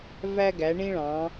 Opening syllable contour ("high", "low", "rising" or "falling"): high